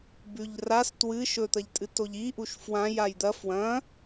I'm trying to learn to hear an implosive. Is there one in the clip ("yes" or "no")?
no